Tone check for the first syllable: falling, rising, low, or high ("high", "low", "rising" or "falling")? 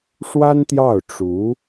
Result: high